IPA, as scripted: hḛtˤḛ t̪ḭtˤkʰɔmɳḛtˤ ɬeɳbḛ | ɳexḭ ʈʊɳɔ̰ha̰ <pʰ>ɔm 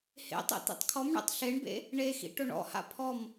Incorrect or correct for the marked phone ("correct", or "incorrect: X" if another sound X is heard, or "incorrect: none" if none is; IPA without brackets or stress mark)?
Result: correct